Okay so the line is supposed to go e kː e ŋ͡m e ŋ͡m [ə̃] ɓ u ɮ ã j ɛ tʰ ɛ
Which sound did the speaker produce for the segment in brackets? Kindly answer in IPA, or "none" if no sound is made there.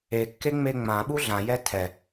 ã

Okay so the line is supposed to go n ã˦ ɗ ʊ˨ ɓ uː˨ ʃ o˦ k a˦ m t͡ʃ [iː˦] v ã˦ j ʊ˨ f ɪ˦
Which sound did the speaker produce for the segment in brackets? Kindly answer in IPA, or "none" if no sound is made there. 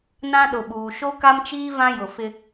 iː˦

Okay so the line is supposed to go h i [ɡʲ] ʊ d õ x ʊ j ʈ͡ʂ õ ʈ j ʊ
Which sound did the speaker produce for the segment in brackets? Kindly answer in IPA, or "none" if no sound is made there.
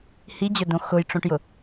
d͡ʑ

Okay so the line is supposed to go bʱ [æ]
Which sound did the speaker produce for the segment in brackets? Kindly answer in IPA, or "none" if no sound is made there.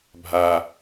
a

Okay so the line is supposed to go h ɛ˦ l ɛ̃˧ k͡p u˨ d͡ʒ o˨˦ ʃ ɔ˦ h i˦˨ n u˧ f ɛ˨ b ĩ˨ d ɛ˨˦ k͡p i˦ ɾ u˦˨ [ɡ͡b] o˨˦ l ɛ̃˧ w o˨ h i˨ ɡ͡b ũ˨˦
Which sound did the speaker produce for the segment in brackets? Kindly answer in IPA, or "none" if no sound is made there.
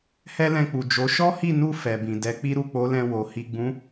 k͡p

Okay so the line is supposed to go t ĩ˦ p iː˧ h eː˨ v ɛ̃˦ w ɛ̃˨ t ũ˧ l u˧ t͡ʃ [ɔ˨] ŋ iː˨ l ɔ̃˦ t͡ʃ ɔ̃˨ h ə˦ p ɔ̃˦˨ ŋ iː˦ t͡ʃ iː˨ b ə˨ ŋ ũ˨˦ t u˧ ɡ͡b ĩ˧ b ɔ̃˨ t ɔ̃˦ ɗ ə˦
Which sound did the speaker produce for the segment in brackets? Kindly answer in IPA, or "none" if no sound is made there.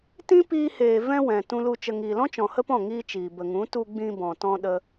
ə˨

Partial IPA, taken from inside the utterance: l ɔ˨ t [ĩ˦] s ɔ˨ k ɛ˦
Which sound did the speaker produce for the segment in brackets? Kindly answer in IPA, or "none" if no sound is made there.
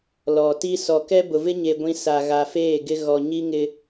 i˦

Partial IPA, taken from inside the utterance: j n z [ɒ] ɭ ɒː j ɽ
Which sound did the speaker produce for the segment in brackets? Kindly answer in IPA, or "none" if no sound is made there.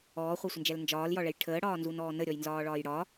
ɒː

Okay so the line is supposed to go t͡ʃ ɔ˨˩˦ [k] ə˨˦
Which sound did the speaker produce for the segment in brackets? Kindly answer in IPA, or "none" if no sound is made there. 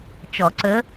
ǀ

